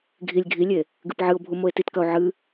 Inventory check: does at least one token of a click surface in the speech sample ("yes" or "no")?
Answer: no